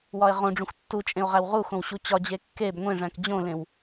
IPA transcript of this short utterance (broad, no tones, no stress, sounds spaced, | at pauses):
w ɒ e̯ ʁ õ ɖ͡ʐ ũ xʷ tː u t͡ʃʼ ẽ o̯ ʁ æ w ʁ u x õ w ɕ u t͡ɕ ɒ d͡ʑ e kː e b ŋʷ ẽ ʐ æ̃ k d͡ʑ õ l ẽ w